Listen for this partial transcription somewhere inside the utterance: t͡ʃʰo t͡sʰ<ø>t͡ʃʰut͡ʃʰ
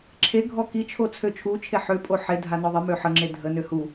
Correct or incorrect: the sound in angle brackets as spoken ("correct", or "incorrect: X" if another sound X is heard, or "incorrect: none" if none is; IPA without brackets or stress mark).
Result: correct